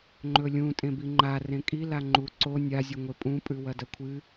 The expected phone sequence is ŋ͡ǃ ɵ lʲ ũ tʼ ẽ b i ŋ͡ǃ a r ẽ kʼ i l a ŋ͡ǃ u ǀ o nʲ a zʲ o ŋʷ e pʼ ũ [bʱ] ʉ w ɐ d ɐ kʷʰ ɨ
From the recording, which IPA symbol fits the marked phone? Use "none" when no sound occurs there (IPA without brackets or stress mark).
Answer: pʼ